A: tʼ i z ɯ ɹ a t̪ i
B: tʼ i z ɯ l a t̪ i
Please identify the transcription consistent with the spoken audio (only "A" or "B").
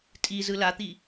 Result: B